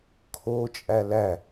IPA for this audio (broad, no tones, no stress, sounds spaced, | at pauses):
kʰ o t͡ʃʼ æ l æ